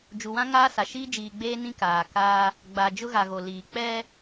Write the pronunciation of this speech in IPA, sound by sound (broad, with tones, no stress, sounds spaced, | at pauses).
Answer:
d͡ʒ u˨ w ã˦ ŋ aː˦ s a˨ ʃ iː˦ d͡ʒ iː˨ ɡ͡b eː˦ n ĩ˦ k aː˨ k aː˦ | ɡ͡b a˨ d͡ʒ ʊ˦ ɣ a˨ ɣ o˨ l iː˨ k͡p ɛ˦